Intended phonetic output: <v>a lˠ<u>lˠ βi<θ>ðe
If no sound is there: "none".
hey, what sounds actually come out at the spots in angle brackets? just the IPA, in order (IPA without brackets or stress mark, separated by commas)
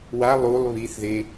w, u, θ